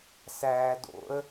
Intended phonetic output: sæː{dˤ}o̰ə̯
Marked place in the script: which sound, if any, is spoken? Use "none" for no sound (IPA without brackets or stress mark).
d